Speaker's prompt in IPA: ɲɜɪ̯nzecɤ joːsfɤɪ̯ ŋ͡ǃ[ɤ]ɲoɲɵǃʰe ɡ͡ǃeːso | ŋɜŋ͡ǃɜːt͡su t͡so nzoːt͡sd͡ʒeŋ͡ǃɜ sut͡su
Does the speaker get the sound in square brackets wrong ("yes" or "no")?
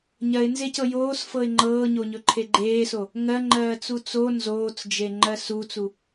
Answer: yes